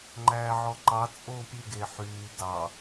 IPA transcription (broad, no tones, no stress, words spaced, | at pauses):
ŋ͡ǃæːʕɔǃɑ t͡sʼoːpʲʉ ɡeħyː dɑ